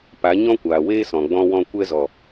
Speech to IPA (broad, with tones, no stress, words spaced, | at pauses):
pa˨˦ ɲɔ̃˦kʷaː˨weː˦ sɔ̃˨ɡ͡bɔ̃˧wɔ̃˧ kʷɛ˧zɔ˨